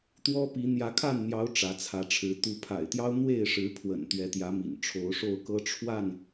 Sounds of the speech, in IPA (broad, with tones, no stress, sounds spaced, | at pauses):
t̪ w ɔ˦ p i˨˦ n̪ j ä˨˦ kʰ a˥˨ n n̪ j ɑ˨˦ ʊ̯ ʈ͡ʂ ä˨˦ t͡sʰ ä˨˦ ʈ͡ʂʰ ɻ̩˨˦ t̪ u˨˦ pʰ a̰˨˩ ɪ̯ t̪ j ɑ˦ ʊ̯ n̪ w e˥˨ ɪ̯ ʂ ɻ̩˨˦ pʰ w ə̰˨˩ n t̪ ɥ ɛ˨˦ t̪ j ä˨˦ m ḭ˨˩ n ʈ͡ʂʰ o˨˦ ʊ̯ ʂ o˥˨ ʊ̯ k ɤ˦ ʈ͡ʂʰ w a˥˨ n